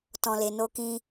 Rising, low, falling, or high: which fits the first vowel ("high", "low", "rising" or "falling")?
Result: low